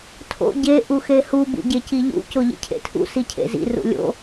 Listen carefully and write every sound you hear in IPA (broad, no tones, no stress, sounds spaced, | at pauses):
tʰ o̰ ɟ e ʔ u x e h u b ṵ ɟ e c i ʎ ṵ c o ʎ ḭ cʰ ḛ tʰ ṵ s i cʰ ḛ z ḭ r ṵ lʲ o̰